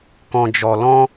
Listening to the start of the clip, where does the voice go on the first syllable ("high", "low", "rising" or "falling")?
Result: low